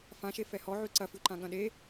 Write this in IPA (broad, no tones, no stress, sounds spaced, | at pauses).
f ã ʃ e f ɛ h ɔ ʕ ʉ ǀ ɐ f ʉ ǃ ã ɠ ɐ̃ ɗ e